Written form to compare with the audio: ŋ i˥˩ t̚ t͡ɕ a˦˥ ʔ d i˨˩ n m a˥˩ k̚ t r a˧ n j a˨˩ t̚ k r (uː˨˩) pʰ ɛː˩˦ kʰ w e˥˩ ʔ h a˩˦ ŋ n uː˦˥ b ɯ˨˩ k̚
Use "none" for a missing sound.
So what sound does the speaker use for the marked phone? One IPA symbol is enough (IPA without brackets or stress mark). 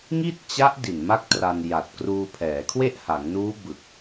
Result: uː˧